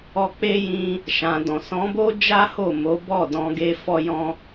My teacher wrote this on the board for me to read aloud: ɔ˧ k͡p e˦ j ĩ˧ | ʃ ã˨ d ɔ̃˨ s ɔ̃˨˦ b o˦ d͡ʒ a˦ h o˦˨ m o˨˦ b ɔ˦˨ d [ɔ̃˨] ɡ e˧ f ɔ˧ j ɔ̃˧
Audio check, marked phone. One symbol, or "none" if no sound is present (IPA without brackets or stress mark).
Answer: ɔ̃˧